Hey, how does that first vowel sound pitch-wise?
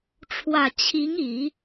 low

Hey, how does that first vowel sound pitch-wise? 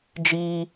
high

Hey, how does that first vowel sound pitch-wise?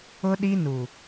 high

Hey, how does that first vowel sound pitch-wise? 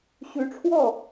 rising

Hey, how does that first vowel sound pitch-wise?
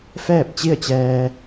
falling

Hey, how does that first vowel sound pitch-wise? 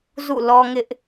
falling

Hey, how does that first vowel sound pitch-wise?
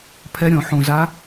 rising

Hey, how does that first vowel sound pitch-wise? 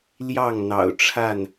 falling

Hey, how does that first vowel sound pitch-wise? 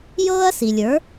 high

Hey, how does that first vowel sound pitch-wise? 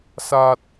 high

